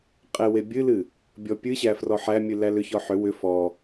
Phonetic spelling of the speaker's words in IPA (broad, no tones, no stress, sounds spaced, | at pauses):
qʼ e w e bʲ ɨ l ɨ | bʲ ɔ pʲ ɨ ɕ æ f r ɔ ħ æ mʲ ɨ l æ l ʏ ç ɔ ħ ʏ w ʏ f ɔ